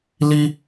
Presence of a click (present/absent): absent